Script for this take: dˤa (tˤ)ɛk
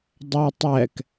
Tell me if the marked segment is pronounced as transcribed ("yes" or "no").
yes